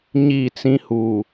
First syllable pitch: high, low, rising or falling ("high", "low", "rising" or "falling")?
falling